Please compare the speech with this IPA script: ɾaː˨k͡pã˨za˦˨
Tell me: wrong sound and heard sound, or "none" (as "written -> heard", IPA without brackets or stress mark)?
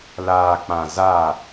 ɾ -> l